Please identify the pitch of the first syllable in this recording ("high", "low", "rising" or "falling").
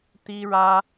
high